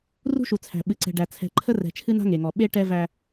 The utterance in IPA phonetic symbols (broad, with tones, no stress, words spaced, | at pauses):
rṳ˦ʃu˨t͡sʰæ̤˨ ɓɨ˨ǀɛ̤˨ɖæ˨ t͡sʰɛ̤˨ǃʰə˦ rɛ̤˨ t͡ʃʰɨ˦na̤˦ŋe˨ŋɔ˨ ɓe˦ʈɛ˦væ˦